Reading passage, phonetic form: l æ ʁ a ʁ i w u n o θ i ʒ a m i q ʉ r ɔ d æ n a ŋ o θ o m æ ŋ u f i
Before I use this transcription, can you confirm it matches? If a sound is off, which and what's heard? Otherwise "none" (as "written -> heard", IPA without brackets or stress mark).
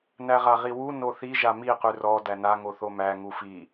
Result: l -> n